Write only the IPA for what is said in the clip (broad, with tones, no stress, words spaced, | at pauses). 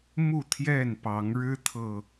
mu˥˨t̪ʰjɛ˥˨n pɑ˨˦ŋɻɻ̩˦t̪ʰɤ˨